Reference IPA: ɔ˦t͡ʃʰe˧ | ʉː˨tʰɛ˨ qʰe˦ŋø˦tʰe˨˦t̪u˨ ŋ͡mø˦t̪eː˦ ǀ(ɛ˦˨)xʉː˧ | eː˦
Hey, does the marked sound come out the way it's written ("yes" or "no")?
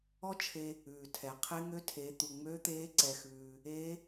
no